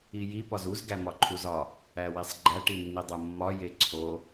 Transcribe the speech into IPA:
i j i p ɒ z u z ɡ æ m ɒ ǃʰ u z ɒ | æ w i sˤ ɡ͡ǃ æ ʈ i nː i dˤ o mː ɒ j e ǀʰ o

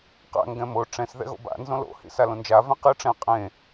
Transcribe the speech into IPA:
q a̰ ŋ ɡ ɛ̃ m o ʈ͡ʂ ɛ̃ s ð ɛ̰ ɣ o̰ b a̰ n z õ l o̰ h ḭ s a l õ n d͡ʒ a v ẽ q ɯ ʈ͡ʂ ɛ̃ qʼ ẽ

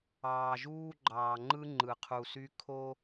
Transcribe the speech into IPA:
ɑː˨ ʒ uː˦ ɡ͡ǃ ɑː˨ ŋ͡ǃ ɯ˦ ŋ͡ǃ ɯ˨ qʰ u˨ s y˦ kʰ o˦

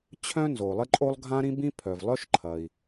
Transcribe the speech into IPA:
t͡ɕʰ œ̃˥ n z o˩ lˠ ɪ˥ ǃʼ o˥ lˠ ɡʱ ã˥ ɾ ĩ˥ b ĩ˥ pʰ œ˩ v lˠ œ˥ ʃ ǃʰ ɐ˩ i̯

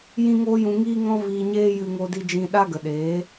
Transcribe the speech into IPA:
j ĩ˦ ŋ oː˦ j ũ˧ ŋ iː˦ ŋ ɔ̃˦ v iː˧ ɲ eː˦ j ɨ˧ ŋ o˧ d i˧ d͡ʒ ĩ˧ ɗ a˦ ɡ ə˨ ɗ eː˨˦

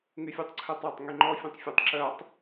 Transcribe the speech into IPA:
ŋ y fʲ ɔ tˤ ǀʰ ø tˤ a tˤ ŋ y ŋ͡ǃ ɔ fʲ õ tˤ fʲ ɔ tˤ ǁ œ tˤ

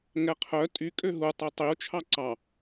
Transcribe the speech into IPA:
ŋ ɛ qʰ œ tʼ y kʼ ø ɦ u tˤ ø tˤ i u̯ t͡ʃʰ ɑ ǀ ɑ

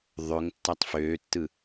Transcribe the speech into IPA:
ðˤ ø ŋ tː æ tˤ f øː tː ɯ

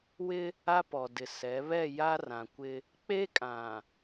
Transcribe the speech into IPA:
w ɪ˦ | a˦ p ɔ˨ d ɪ˨ s ɛ˨˦ β ɛ˦˨ j a˦ r ã˨ kʷ ɪ˦ | k͡p e˦ kʼ ã˨

